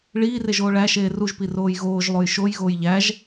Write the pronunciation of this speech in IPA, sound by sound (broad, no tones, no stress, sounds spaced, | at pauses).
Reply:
ɭ iː r e ʒ oː ɭ æ ʃ eː r u ʒ p i r oː j ɣ oː ʒ lˠ o j ʃ o j ɣ oː j ʎ æ ʒ